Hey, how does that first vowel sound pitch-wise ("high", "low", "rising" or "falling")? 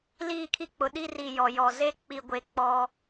falling